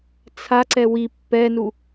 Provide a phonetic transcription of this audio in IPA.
t͡sʰaǀɛ wi pːɛnu

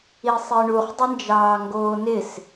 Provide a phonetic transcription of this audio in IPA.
isˤiɳuχ dˤɪnd͡ʒɑːŋɡoːnɪs

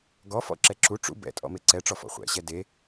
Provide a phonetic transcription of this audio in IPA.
ɡɔfɔ̰ ǁɛǁu ʈ͡ʂṵ bɛ̰tʼɔ̰ meǀɛʈ͡ʂɔfɔ̰ χʷɛ̰ɕɛ de

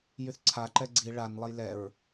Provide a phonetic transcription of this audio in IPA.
jyθǀʰa ǃɛɡ͡ǀi ɭan lˠɐjlɛɹ

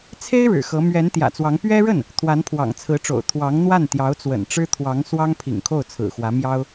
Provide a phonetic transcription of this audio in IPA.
t͡sʰe˥ɪ̯ ɻɻ̩˨˩xɤ˧˥ mɥɛ˧˥nt̪jä̰˨˩t͡swɑ˧˥ŋ pɥɛ˥ɻə˥˩n | t̪ʰwa˧˥npʰwɑ̰˨˩ŋt͡sʰɹ̩˧˥ʈ͡ʂo̰˨˩ʊ̯ t̪ʰwɑ˧˥ŋn̪wa˥˩n t̪jɑ˧˥ʊ̯t͡swə̰˨˩nʈ͡ʂɻ̩˥ t̪ʰwɑ˧˥ŋ swɑ˥ŋpʰḭ˨˩ŋkʰo˥˩ʊ̯ t͡sʰɹ̩˨˩xwä˧˥mjɑ˥ʊ̯

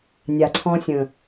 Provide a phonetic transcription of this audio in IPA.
nʲa˨ǀʰɔ̃˧sʲə̃˨

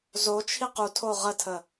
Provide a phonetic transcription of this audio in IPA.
zot͡ʃʰi qu tʰoʁətʰə

